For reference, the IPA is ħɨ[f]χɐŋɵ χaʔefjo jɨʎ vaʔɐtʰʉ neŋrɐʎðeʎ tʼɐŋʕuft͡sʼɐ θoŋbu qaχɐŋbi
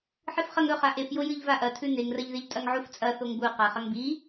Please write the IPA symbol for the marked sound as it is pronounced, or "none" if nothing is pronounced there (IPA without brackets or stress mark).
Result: f